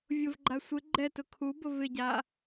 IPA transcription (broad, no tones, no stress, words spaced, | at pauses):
vʲʊvɡ͡ǃa sʷɪ ɡ͡ǃɛtʊ kʰubʊ vɪɟa